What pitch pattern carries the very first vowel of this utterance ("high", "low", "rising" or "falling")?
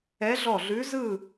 rising